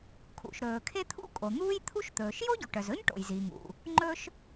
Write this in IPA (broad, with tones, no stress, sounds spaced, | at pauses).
kʰ ṵ˩ ʃ ɾ ɵː˩ kʰ e˥ t̪ʰ ṵ˥ kʼ o˩ n̪ uː˥ j t̪ʰ u˥ ʃ t̪ ɵː˩ ʃ j o˥ ɟ u˩ ʈ œ˩ z ɵ˥ ɲ ʈ o̰˩ j z i˩ ŋ ṵ˩ | ŋ͡ǃ ɵ˥ ʃ